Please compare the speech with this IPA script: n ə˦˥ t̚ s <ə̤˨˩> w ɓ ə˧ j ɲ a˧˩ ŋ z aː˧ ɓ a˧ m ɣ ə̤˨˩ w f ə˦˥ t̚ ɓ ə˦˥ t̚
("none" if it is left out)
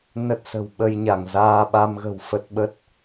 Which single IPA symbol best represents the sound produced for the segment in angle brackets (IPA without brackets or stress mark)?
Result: ə̤˨˩